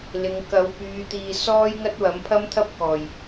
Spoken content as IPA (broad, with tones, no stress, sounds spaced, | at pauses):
l ɪ˨˧ ŋ k ɐ˨˥ w p yː˨˧ t̪ iː˨ s ɔː˥ j ŋ ɐ˥ t̚ w ɐ˨˥ m pʰ ɐ˥ m t̪ʰ ɐ˥ p̚ k ɔː˨˩ j